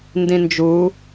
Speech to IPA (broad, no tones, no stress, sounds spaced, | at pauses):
n d ĩ n d͡ʒ u